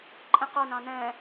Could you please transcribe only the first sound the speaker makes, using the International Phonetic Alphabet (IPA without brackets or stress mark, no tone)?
ǃʼ